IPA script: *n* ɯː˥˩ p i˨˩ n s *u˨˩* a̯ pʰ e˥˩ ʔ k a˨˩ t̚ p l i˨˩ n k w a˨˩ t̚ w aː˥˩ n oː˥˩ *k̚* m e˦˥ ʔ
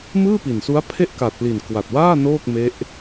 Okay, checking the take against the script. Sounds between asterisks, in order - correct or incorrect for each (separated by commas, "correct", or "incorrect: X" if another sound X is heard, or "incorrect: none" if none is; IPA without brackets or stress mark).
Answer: incorrect: m, incorrect: u˦˥, correct